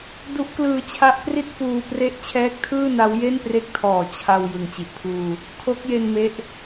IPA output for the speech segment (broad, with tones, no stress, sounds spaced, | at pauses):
d u˦˥ ʔ k l ɯː˧ t͡ɕʰ a˦˥ ʔ p r i˥˩ t̚ f uː˧ p r e˦˥ ʔ t͡ɕʰ ɛː˦˥ k̚ tʰ ɯː˥˩ n a˦˥ w j e˥˩ n p r e˦˥ k̚ tʰ ɔː˨˩ t͡ɕʰ a˧ w j ɯ˨˩ ŋ t͡ɕ i˨˩ ʔ pʰ uː˧ | kʰ o˦˥ k̚ j e˧ n m e˦˥ ʔ